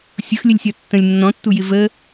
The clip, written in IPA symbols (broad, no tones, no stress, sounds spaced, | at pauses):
sʲ ʊ x lʲ ə lʲ sʲ ɒ tː ə̃ lʲ nː ɔ̃ tː u j ɪ v ə